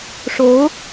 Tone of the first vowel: rising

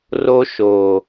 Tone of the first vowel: high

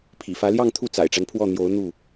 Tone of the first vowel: low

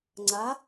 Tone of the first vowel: rising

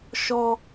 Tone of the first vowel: high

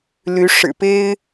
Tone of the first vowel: rising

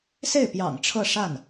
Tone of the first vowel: falling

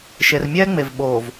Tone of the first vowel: low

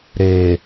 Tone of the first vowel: low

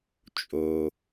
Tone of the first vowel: low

